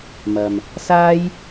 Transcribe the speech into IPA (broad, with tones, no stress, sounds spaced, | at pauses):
m ɐ˨ m | s aː˥ j